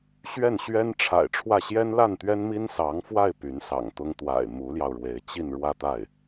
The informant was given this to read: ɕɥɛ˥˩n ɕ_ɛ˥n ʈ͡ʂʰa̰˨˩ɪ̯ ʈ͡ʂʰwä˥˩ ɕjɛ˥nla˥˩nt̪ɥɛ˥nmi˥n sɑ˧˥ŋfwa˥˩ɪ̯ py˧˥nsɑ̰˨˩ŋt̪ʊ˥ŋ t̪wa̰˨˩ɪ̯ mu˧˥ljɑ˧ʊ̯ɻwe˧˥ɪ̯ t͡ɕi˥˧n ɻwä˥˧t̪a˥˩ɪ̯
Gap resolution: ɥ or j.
ɥ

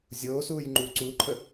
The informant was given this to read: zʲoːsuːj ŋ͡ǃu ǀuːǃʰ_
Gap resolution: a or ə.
ə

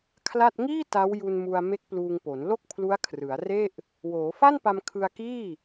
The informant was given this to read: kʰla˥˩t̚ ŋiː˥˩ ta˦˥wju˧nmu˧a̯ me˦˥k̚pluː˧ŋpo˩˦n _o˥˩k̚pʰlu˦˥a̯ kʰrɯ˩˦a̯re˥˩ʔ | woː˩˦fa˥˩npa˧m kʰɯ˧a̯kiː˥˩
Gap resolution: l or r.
l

